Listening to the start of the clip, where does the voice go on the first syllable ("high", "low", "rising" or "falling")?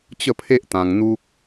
falling